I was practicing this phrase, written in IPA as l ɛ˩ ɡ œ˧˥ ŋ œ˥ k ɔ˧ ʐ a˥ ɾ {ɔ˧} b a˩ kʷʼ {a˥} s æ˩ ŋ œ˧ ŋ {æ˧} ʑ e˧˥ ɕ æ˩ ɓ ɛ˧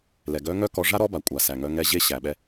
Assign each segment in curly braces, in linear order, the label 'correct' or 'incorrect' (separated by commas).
incorrect, incorrect, incorrect